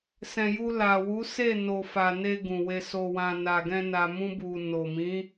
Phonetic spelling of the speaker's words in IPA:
s ɛ̃˨ j u˧ l a˨ w u˨˦ s e˦˨ n o˨ f a˨ n e˧ ɡ ũ˨ w e˧ s o˧ w ã˧ n a˨ ɡ ɛ̃˧ n a˧ m ũ˦ b u˧ n o˨ m ĩ˨˦

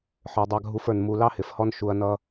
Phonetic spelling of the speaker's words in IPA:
ħ ə˞˧ dˤ ɑ˦ ɡʱ u˦ f ə˞˧ n m u˧ l ɑ˦ h ɪ˨˦ f h ɔ˦ n ʃ u˧ ɐ̯ n ʌ˦

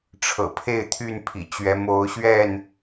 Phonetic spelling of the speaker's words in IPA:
ʈ͡ʂʰ ɤ̰˨˩ pʰ e˥˨ ɪ̯ t̪ʰ y˥˨ n pʰ ḭ˨˩ t͡ɕ ɥ ɛ˨˦ m o˨˦ ʊ̯ ɕ ɥ ɛ˥˨ n

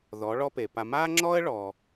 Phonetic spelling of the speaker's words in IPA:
ð ɔ˩˥ ɭ ɔ˥ p e˩ p a˧ m a˥ ŋ͡ǁ ɔ˥ ə̯ ɭ ɔ˩

